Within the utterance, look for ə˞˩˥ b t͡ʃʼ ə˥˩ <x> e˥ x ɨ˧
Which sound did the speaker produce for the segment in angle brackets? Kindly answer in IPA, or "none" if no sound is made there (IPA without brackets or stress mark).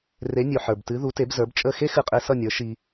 x